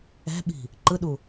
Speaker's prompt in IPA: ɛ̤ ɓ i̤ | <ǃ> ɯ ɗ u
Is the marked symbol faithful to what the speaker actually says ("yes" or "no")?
yes